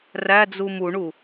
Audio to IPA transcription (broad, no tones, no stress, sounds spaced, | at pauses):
r æ d͡z u m u ɳ u